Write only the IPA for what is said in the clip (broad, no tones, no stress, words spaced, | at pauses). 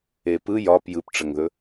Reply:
epɯ jɒp jɯpʈ͡ʂəŋðɵ